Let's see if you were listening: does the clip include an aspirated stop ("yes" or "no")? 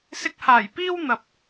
no